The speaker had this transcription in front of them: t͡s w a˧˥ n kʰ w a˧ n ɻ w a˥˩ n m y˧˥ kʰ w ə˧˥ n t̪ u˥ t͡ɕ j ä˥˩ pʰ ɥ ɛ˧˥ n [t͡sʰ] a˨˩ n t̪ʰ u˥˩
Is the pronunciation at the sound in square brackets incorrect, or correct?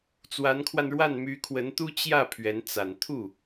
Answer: incorrect